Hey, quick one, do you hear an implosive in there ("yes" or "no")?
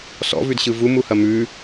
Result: no